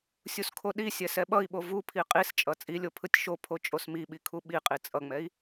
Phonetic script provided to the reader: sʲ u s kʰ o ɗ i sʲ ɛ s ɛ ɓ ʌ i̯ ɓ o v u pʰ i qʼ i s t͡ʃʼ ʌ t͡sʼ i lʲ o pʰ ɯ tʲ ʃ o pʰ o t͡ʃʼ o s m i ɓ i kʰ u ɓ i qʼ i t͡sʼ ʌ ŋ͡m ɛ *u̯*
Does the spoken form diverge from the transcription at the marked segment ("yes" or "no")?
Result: yes